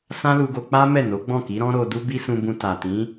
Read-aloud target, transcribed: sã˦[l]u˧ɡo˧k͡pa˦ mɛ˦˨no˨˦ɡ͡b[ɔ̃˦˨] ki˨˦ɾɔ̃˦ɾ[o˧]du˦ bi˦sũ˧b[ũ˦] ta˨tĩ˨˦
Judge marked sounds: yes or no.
yes, yes, yes, no

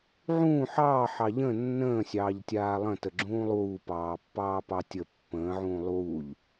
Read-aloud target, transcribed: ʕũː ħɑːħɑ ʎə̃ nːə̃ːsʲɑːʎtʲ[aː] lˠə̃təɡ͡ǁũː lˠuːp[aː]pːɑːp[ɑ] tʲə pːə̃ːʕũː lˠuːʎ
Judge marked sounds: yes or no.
yes, no, yes

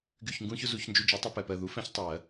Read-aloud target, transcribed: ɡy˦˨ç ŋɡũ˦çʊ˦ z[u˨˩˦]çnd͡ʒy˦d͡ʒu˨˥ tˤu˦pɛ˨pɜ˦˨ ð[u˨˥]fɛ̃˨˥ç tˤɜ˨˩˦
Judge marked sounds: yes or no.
yes, yes

